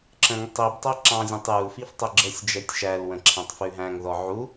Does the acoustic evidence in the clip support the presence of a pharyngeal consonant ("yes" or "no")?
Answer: yes